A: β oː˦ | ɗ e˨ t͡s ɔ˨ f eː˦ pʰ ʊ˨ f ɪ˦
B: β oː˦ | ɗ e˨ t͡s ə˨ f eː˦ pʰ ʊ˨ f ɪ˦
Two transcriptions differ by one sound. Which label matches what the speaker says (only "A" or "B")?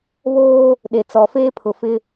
A